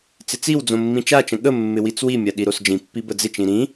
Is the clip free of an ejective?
yes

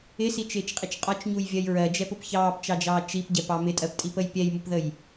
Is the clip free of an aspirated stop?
yes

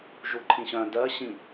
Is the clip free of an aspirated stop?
no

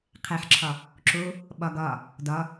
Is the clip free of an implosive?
no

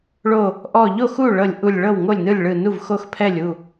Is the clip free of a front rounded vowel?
yes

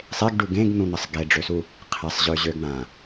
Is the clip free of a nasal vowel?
no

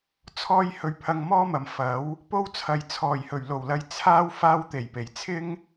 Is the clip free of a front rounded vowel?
yes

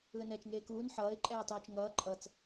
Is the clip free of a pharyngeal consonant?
no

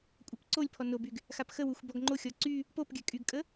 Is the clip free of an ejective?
no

